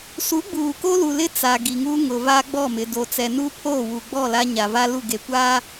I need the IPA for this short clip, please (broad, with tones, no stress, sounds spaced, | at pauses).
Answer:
s u˨˦ ɡ͡b uː˨ k o˦ l u˨ l ɪ˦ t͡s a˨ ɡ i˨ ŋ u˦ ŋ ʊ˨ v a˦ ɡ͡b ɔ˦˨ m ɪ˨ d o˨ t͡s ɛ˨ n u˦ pʰ oː˦˨ w u˨ ɡ͡b ɔ˦˨ l a˦ ɲ a˨ v a˦ l u˦˨ ɡ e˨ kʷ a˦